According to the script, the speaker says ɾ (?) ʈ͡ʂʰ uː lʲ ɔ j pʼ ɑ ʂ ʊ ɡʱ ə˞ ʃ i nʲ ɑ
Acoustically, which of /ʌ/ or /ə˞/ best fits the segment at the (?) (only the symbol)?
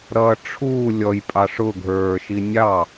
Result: ʌ